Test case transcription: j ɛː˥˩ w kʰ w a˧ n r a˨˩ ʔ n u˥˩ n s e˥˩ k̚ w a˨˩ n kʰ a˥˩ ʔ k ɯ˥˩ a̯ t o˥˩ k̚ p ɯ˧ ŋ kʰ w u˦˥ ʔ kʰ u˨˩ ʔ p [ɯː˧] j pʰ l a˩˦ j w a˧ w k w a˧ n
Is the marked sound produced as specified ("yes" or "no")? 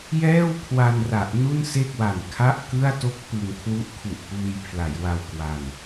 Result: yes